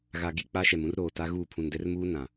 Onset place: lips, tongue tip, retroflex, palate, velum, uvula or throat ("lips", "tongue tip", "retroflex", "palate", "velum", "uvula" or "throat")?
velum